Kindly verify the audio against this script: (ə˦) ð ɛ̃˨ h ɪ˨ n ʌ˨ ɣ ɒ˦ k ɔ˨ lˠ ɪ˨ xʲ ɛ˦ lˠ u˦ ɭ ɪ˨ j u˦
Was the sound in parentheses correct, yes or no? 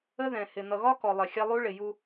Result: yes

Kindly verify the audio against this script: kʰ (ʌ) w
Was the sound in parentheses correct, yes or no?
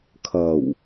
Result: yes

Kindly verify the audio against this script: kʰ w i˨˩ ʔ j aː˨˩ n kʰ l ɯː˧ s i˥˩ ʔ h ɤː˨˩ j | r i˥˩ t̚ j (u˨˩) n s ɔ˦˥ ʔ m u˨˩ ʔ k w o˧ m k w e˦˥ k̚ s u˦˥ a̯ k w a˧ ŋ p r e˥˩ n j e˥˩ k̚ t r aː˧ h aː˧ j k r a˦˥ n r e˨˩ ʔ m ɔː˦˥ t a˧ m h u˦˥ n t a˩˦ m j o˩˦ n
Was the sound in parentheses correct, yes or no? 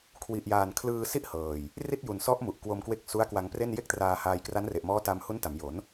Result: yes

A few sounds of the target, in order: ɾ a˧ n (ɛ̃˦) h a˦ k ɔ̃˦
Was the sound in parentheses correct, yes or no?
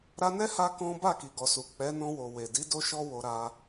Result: no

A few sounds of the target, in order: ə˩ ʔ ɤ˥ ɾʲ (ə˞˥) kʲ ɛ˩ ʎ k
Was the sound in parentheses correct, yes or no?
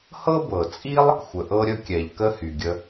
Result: no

